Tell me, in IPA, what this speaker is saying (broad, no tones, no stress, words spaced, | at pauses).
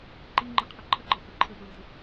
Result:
ǃiŋ͡ǃəqʰɐ ǃʰəɡ͡ǃɤ hɘǃʰəpɹidɘ